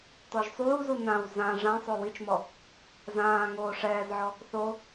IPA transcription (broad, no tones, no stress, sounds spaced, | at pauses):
t ɔ ʒ sˤ uː z u n ã w z ã ʐ ã sˤ o w i t͡ʃ m ɔ | z ãː ŋ oː ʂ ɛː z ʕ ɔ | θ o